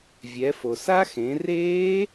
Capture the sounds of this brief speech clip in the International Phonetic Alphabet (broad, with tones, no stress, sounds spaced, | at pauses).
vʲ ɛ˩˧ f o˩ s a˦˥ x ẽ˩˧ r eː˦˥